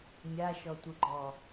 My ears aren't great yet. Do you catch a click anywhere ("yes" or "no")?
yes